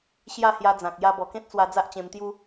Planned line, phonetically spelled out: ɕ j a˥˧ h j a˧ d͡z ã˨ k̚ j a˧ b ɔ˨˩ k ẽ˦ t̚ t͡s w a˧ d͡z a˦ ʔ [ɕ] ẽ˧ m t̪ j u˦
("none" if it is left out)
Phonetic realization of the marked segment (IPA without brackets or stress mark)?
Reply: t͡ɕ